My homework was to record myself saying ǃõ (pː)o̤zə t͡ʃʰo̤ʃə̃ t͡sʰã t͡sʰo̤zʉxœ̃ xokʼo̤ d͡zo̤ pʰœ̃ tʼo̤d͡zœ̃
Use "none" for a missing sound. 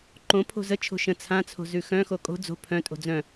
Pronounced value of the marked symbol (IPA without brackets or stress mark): pʰ